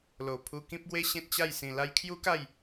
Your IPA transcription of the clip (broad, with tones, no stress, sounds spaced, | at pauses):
l o˨˩ pʰ u˧ k ĩ˦ p̚ ɡ w e˦ ɕ ẽ˦ t̚ t͡ɕ a˥˧ j s ĩ˧ l a˧ j kʰ j u˦ k a˥˧ j